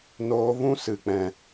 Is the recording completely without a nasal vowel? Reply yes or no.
no